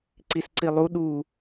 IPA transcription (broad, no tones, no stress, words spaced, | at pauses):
ǀisǀilˠu ɗu